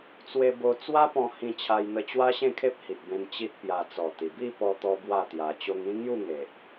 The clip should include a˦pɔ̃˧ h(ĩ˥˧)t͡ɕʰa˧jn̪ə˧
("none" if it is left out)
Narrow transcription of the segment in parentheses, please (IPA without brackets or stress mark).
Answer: ĩ˧